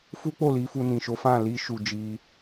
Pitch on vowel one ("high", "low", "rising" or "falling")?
high